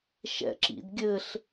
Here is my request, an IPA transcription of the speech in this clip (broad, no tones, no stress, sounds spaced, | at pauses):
ʃ ɛ̰ ǁ ḭ d ɡʲ ɘ ɬ